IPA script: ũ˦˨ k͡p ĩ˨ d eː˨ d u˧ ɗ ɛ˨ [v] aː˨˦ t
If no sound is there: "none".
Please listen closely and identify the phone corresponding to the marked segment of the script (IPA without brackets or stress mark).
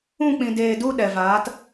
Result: v